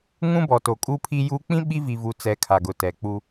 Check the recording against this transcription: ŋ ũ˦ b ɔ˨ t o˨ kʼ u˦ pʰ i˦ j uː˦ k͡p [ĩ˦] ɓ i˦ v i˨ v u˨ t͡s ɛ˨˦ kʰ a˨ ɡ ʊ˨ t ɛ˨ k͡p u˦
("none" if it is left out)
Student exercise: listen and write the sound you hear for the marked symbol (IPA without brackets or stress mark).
ĩ˦